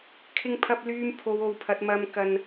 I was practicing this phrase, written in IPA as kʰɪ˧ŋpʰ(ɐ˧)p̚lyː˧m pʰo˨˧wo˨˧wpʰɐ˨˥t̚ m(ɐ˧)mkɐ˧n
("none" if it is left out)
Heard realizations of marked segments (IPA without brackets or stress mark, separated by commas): ɐ˧, ɐ˧